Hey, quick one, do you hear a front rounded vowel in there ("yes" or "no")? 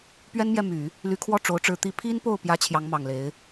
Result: yes